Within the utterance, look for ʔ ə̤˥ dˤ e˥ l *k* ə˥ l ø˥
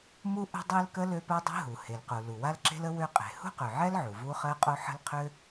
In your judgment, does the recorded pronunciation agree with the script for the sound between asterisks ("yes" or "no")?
yes